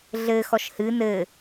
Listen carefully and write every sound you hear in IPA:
ɮ ɘ x ɔ ʃ h ɨ n ɘ

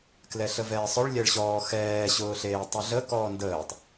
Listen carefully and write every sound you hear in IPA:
k l ɛ ɬ ə v ɛː sˤ ʊ ɭ lʲ ɛ ɭ ɕ ɔː x ɛː ɕ ʊː ɬ eː tˤ ʊ ɮ ə k ɔː n d əː tˤ

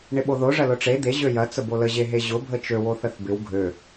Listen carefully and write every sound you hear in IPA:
ɳ ɪ ɓ o ð o ʐ ɐ l ʊ ʈ͡ʂ e d̪ e ʑ ø j ɐ t͡s ə b o l ə ʑ e ɦ e ʑ ʊ bʱ ə t͡ʃ ø w o θ ə θ b ɪ w ɡʱ ø

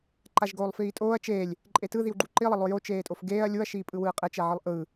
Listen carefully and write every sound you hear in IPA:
ǃ a ʒ ɡ oː lˠ f iː tʼ oː ɐ̯ t͡ʃ eː lʲ | ǃʼ e t ɯ ð i w ɡ͡ǃ u ǃ i lˠ ʌ lˠ o j o t͡ʃ eː tʼ o f ɡ eː ɐ̯ lʲ u ɐ̯ ʃ iː pʼ ɯ w ɯː qʼ ɛ t͡ʃ ɛ ʕ ɯ lˠ ʔ ɯː

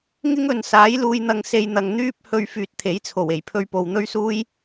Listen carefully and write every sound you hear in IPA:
ŋ ɪ˥ ŋ ɵ˨ n s aː˨˥ j l uː˧ j n̪ ɐ˧ ŋ s e˧ j n̪ ɐ˨ ŋ n̪ yː˥ p̚ h ɵ˧ ɥ f yː˧ t̚ t̪ʰ e˨˥ j t͡sʰ o˨˩ w e˨˩ j pʰ ɵ˥ ɥ p o˧ w n̪ ɵ˥ ɥ s uː˥ j

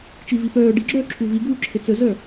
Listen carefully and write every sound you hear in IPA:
t͡ʃ i v i p œː ɖ i ɡ͡ǁ œː ǁʰ u v i ɡ uː ǁʰ e t͡s ə z œ

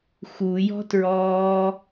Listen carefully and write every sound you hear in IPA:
x u j ɔ̤ t ɹ ɔː

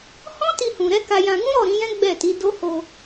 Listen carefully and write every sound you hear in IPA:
h ɔ̃˦ t i˧ h ũ˨ ɾ ɛ˨˦ k a˧ j ã˧ ɡ ũ˦ ɾ ɔ˦˨ ɾ ĩ˨˦ j ɛ̃˦ ɡ͡b ɛ˦˨ t i˨˦ d o˦ h o˧

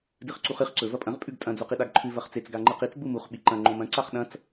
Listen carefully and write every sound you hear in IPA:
d ɨ χ ǀ u χ ɨ χ ǀ ɵ v ɐ pʼ ɐ̃ ʁ pʼ ʉ ɡ tʼ ɐ̃ d͡z o q i ɗ a ɡ ǃʰ ʉ v ɐ χ t͡s e t͡s ɡ a ŋ͡ǃ ɨ q i t͡s ɡ͡b u m u χ ɓ i ǃ ɐ̃ ŋ͡ǃ õ m ɐ̃ ǀ a χ ɗ ɐ̃ t͡s

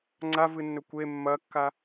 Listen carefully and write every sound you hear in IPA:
ŋ͡ǀ a v ɨ nː ɵ kʷ e mː ɐ kː a

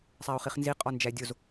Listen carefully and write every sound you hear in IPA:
sˤ æ ʊ̯ χ i χ n z i qʼ ɒ n d͡ʒ æ dʲ o z

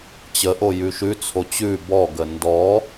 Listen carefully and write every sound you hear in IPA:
t͡ɕ ə ʔ o j ʉ ʃ ʉ t͡sʰ o t͡ɕ ʉ b ɔ ɡ ə n d ɔ

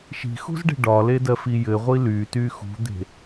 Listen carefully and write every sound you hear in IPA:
ʃ i̤ x ṳ z ɖ e̤ ɖ ɒ l e d ɜ f i j ɘ ʁʷ i l y t y x ṳ d̪ e̤

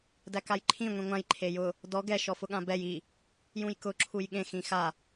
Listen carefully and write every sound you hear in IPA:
d æ k a j ǃʰ ĩ ŋʷ ĩ ŋʷ ã j ǃʰ e j ʊ | d ɔ ɡ ɛ ʃ ɔ f ʊ ɠ ã b ɛ j i | j ũ j k ʊ ǁʰ u j ɠ ẽ x ĩ x a

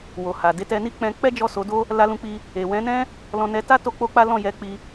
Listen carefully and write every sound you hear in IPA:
w o˨ h a˨ d e˨˦ t ɛ˧ n i˦ k͡p ɛ̃˧ k͡p ɛ˦ d͡ʒ ɔ˦˨ s o˨˦ d o˦ | l a˧ l ũ˧ k͡p i˧ | e˨ w ɛ̃˨˦ n ɛ̃˦ | l ɔ̃˧ n ɛ˧ t a˦ t o˦ k͡p o˦ k͡p a˦ l ɔ̃˦˨ j ɛ˧ k͡p i˧

